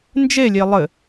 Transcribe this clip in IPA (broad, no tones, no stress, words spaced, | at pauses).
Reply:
nd͡ʒelʲe lˠɘ